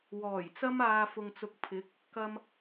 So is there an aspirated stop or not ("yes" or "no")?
yes